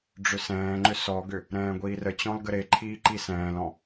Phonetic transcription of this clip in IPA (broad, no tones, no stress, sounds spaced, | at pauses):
ɖ͡ʐ ʏ s ɛ̃ː ŋ͡ǃ ʏ s ɔ ɡ ʏ | ɾ ɛ̃ː ɡʷ iː r ə t͡ɕ ɔ̃ l ɡ ə ɾ e ǃʰ iː ǃ i s ɛ̃ː l ɔ̃